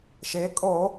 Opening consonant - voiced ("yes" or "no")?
no